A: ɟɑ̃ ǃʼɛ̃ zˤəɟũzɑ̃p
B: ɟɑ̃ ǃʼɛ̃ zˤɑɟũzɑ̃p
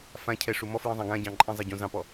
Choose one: B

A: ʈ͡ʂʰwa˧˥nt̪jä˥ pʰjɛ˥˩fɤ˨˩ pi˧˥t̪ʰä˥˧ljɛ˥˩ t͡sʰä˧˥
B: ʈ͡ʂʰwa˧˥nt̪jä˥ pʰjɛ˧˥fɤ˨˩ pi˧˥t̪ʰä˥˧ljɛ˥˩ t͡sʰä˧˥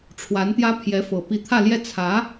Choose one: B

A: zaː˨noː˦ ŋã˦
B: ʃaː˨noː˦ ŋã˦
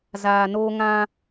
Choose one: A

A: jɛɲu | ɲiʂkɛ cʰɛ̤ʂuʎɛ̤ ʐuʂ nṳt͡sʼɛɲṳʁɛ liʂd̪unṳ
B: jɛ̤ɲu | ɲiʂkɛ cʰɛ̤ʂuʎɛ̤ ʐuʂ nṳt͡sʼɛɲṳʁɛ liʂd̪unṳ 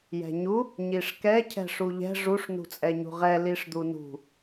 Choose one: B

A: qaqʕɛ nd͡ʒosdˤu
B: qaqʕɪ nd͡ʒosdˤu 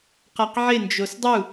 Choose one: B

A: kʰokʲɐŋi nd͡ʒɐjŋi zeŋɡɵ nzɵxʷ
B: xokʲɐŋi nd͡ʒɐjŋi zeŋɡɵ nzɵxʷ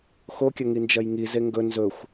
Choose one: B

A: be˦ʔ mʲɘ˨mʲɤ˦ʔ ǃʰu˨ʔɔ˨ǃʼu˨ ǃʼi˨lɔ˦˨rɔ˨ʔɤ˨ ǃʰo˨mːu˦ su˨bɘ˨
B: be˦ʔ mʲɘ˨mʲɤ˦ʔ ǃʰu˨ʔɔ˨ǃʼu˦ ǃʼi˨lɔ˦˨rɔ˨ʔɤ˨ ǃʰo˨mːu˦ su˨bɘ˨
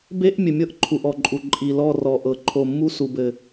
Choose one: A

